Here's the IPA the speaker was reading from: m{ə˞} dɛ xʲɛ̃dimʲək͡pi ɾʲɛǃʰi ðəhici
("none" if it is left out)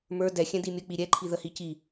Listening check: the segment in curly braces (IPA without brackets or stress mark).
ə˞